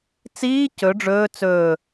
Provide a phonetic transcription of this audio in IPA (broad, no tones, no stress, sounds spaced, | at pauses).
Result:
t͡s iː c ɵ ɖ͡ʐ ɵː t͡s ɵː